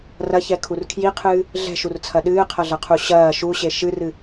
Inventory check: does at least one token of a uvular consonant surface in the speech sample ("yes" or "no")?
yes